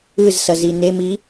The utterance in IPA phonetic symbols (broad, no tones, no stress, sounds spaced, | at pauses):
ɯ z s ʌ z i n e m i